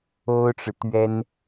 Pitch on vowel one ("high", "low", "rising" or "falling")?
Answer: high